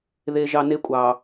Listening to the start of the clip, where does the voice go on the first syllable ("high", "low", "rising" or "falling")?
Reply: low